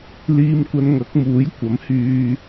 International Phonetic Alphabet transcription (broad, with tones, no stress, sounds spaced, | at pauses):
l iː˧ m kʷ ɐ˧ n ŋ ɐ˨˥ k̚ m uː˨˥ j kʷ ɐ˨˥ m h yː˧